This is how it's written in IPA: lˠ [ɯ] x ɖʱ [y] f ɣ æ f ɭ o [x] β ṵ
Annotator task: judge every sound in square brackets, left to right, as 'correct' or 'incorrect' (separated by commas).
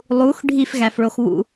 incorrect, incorrect, correct